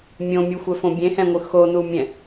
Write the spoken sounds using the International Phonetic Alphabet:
mʲõmʲuxʷɛfõ bʲẽhɛ̃ŋʷɯ xonumʲɛ̃

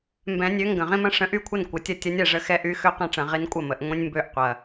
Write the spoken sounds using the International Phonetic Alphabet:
mbɛ̃˨˩˦nʲø˨˥ ŋɡə̃˨˩ ʁĩ˦mɐ̃˦ʂə̃˨˥ ʔy˥˩kʷʰɐ˥˩n kʷə˨˩tʲɐ˥˩ tʲɐ˨˥nʲɛ˨˩ʐə˥˩ xɛ˦ʔy˨˥ xø˦qɛ̃˥˩ʈ͡ʂɐ̃˨˩˦ ʁi˨˥nkʷʼɐ˥˩mə˨˩˦ʔ ŋʷĩ˦nʲmbø˥˩ʔqʷɐ˨˩

